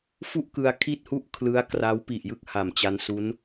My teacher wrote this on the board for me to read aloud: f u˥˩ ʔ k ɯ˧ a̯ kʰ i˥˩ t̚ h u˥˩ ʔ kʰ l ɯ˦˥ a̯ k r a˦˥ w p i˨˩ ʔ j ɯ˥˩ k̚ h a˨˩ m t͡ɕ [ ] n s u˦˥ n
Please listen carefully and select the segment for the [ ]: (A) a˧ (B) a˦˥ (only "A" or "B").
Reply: B